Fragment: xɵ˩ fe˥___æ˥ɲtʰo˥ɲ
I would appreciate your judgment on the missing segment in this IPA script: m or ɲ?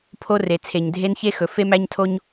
m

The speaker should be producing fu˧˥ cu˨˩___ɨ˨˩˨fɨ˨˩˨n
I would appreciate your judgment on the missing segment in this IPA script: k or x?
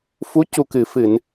k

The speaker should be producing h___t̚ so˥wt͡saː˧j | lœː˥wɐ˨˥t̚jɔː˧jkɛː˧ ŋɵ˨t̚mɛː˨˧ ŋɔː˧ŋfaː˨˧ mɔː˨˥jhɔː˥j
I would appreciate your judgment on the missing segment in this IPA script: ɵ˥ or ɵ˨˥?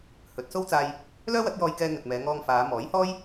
ɵ˨˥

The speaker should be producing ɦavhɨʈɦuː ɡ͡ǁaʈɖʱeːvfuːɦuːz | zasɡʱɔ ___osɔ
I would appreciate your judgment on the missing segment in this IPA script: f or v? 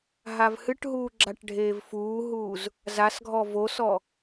v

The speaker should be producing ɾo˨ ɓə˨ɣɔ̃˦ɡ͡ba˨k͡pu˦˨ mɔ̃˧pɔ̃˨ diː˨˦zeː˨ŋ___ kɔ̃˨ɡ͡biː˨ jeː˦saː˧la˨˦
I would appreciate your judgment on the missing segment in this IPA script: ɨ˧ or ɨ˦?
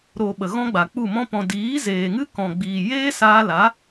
ɨ˦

